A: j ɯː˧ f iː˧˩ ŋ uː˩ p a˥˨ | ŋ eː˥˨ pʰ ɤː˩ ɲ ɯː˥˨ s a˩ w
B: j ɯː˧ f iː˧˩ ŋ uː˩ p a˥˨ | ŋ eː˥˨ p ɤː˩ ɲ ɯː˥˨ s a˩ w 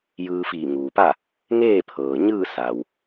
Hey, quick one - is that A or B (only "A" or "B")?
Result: A